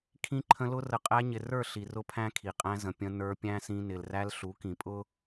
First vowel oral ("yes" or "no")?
no